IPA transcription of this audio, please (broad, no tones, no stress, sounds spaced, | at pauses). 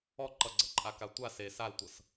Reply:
ɔ ǃ ʌ ɡ͡ǀ ʌ ǃʼ a k a tʷ a s e s a l tʷ ʌ s